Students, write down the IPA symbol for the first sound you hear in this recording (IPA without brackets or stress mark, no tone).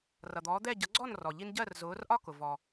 r